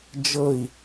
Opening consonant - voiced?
yes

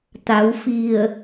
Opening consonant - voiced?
no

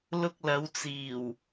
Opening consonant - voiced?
yes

